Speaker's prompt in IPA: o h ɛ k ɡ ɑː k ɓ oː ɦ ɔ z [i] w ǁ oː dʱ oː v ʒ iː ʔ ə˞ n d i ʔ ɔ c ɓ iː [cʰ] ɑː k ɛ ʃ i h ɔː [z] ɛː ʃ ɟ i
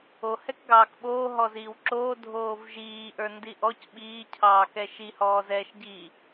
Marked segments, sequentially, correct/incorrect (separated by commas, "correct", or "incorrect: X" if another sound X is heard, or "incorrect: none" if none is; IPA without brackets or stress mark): incorrect: iː, correct, correct